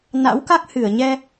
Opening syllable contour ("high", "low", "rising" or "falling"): rising